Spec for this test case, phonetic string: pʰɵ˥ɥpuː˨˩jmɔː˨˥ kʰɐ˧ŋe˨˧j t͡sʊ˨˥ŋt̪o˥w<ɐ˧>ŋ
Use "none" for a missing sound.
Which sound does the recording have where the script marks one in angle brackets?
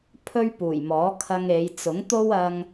ɐ˧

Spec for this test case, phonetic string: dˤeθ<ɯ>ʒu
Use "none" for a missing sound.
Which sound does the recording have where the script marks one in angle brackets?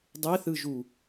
ɯ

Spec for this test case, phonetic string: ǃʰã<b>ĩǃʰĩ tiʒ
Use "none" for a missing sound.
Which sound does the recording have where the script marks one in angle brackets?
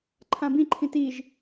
b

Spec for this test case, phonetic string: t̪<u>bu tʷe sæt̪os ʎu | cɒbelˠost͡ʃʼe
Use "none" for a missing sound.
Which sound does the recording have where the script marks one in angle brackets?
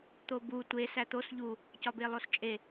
o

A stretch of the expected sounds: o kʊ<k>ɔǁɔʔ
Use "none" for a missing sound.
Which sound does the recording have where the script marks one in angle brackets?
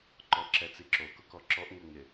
k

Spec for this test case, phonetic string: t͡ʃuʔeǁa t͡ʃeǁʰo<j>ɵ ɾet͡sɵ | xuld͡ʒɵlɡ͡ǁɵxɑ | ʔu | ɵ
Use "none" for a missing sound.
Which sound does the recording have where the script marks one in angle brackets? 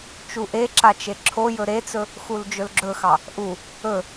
j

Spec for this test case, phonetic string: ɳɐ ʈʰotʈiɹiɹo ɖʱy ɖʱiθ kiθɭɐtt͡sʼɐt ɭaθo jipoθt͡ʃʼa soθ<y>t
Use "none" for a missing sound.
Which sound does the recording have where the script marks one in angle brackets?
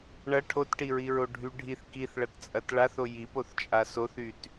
y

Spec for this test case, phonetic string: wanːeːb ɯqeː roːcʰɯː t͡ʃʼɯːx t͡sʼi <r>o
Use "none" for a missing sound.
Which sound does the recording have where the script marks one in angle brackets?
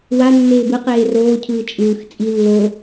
lː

